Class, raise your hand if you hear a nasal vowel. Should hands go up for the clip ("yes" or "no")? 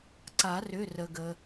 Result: no